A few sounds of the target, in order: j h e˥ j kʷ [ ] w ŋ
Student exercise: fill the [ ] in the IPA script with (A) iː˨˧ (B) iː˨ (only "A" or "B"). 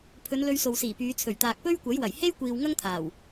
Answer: B